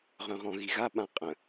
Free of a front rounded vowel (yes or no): no